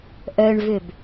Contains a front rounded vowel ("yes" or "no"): yes